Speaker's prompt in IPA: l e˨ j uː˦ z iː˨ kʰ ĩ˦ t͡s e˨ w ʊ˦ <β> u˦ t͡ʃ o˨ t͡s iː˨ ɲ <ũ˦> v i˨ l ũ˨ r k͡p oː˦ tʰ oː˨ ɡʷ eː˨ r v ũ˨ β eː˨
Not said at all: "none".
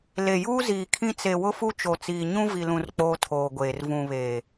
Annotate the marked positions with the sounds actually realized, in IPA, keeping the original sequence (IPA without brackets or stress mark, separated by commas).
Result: f, ũ˦